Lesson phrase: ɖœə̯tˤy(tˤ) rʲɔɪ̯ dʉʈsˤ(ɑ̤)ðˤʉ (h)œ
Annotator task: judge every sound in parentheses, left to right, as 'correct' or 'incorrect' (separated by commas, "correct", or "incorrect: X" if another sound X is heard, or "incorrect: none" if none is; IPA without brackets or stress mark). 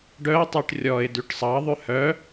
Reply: incorrect: ʈ, incorrect: ɑ, correct